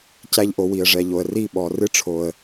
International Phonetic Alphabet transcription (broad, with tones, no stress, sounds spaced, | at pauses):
c æ˧ ʎ ʔ o˨ w i˨ ə̯ ʐ ɛ˨ ʎ o˨ ə̯ r i˦˨ ɓ ɔ˨ r ɨ˦ ʈ͡ʂʰ o˨ ə̯